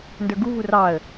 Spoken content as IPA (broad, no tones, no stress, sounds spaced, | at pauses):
n d ə˞ ɡ u v u r ɑ ə̯